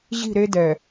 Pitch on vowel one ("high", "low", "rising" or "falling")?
falling